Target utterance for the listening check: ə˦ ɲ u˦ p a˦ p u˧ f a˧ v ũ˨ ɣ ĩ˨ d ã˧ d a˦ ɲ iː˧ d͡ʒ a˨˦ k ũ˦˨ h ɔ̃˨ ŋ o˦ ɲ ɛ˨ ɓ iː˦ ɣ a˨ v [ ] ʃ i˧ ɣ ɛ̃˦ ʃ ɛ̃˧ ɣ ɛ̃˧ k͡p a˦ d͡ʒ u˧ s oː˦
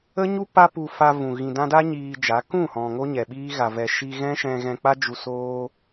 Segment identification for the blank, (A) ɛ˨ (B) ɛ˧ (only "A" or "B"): A